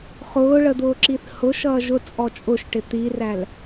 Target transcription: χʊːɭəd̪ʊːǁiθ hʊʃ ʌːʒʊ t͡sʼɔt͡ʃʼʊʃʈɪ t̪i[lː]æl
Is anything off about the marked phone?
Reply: yes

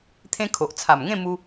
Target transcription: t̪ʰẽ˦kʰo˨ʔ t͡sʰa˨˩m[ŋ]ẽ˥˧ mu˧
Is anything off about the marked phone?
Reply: no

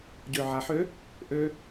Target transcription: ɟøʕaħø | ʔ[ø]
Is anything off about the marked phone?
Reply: no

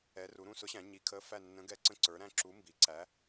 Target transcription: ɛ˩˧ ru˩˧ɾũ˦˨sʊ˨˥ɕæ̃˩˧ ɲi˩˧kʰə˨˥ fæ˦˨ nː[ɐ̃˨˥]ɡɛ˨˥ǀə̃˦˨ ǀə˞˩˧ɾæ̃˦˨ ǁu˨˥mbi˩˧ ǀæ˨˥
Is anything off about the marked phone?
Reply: yes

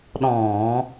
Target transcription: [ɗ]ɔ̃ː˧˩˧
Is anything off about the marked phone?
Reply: no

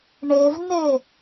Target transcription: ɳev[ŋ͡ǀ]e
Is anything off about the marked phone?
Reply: yes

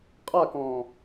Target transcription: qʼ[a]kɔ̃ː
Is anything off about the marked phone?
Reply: no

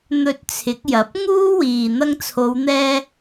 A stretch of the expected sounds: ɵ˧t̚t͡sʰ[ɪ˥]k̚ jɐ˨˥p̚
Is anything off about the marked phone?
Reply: yes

